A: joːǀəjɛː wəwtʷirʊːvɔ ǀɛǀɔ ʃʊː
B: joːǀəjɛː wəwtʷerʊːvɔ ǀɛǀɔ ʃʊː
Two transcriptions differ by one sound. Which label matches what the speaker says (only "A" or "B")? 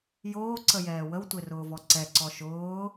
B